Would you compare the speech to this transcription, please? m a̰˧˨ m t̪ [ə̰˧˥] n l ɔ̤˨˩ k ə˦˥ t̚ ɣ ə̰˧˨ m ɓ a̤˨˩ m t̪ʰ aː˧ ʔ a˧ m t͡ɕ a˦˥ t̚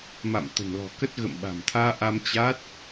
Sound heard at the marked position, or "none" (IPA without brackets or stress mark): ə̤˨˩